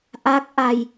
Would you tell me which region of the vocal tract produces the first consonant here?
throat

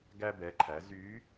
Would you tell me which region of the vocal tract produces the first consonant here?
velum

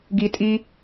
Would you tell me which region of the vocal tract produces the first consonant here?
velum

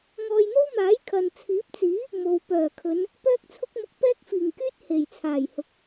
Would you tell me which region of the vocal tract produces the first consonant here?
velum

